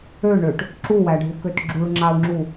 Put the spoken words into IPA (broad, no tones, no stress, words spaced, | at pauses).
øɳøʈ | ǁuwæɖʱukøt ɡ͡ǁuɭŋ͡ǁau̯ŋ͡ǁu